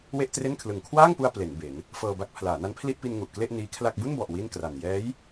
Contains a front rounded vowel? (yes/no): no